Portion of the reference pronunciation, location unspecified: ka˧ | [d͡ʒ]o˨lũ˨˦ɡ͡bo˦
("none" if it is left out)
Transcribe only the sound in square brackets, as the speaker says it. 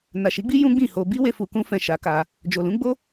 d͡ʒ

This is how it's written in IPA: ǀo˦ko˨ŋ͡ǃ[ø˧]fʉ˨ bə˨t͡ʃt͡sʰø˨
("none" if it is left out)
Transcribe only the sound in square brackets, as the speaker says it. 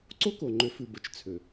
ø˨˦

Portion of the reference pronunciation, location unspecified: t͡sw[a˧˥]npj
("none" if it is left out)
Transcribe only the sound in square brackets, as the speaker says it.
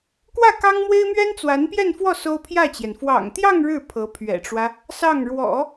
a˧˥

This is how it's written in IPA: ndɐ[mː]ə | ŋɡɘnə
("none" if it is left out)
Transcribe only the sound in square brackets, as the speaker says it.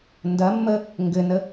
mː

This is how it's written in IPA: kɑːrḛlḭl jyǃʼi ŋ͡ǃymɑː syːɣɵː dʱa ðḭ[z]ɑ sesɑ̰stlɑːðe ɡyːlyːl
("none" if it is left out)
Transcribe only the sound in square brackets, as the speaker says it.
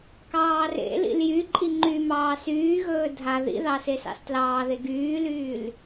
ð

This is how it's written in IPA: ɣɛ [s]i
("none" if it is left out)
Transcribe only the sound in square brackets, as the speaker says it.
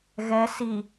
s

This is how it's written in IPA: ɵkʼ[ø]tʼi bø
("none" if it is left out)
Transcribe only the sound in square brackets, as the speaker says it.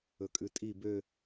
ʉ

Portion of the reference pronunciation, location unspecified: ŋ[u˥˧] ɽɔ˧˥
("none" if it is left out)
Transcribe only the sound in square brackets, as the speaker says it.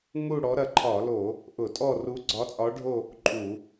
u˥˧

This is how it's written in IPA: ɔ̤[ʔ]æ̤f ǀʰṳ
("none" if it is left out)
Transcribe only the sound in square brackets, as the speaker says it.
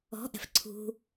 ʔ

